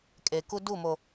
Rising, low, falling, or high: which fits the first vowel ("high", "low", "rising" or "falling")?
low